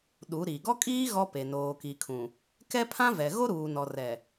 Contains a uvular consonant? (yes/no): no